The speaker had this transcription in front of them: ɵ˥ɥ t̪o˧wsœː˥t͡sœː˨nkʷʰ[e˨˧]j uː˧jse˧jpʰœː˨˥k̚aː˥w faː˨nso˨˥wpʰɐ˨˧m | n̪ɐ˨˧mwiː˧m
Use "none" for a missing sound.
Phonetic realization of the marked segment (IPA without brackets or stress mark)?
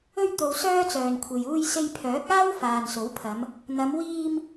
e˨